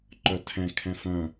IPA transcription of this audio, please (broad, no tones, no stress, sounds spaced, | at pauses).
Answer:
ǃ œ tʰ ɛ̃ kʰ ɛ̃ f œ̃